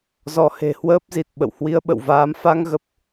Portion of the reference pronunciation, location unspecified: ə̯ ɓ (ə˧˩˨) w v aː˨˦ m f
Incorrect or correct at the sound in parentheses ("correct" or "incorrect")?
incorrect